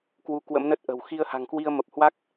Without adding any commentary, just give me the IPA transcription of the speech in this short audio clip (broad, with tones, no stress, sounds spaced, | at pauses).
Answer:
k w u˧ k w ə̰˧˥ m n ə˦˥ t̚ ʔ ə̤˨˩ w x i˧ ə̯ h a̤˨˩ ŋ k w i˧ ə̯ m ə˨˩ p̚ h w a˦˥ k̚